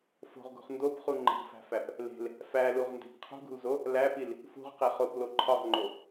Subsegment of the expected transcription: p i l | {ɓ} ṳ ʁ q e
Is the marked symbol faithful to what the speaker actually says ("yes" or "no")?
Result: no